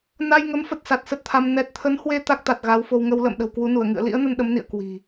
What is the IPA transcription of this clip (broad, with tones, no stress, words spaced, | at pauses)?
na˧jŋə˨˦m fə˦˥t̚sa˨˩t̚sə˦˥t̚t̪ʰa˧m nɛ˨˩t̚t̪ʰə˨˦nhwe˧ t̪a˦˥k̚t̪a˨˩t̚ ɣa˨˦wfo˧w ŋə˧wlə̰ː˧˨mɗə̤˨˩w kwu˨˦nu˧˩ə̯ ŋɨ̰˧˨ə̯lḭ˧˥ə̯nə˧n ɗə˨˦mnḭ˧˨ə̯ kwi̤˨˩